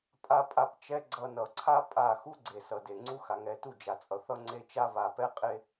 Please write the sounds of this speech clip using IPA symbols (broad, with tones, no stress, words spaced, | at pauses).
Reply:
pʼa˧pʼa˧p t͡ʃɛ˦ɡ͡ǀʌ˧nʌ˨ ǀʰa˧ pʼa˦˨ xu˦ɡ͡ǀe˨sʌ˨ de˨ ŋ͡ǀu˦xa˨ŋɛ˧ tu˦˨d͡ʒa˨t͡sʼʌ˨˦θ ʌ˧ŋ͡ǀe˧t͡ʃa˧ βa˨pɛ˧qʼe˧